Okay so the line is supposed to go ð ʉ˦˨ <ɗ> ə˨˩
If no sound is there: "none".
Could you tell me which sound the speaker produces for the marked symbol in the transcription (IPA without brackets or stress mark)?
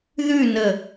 n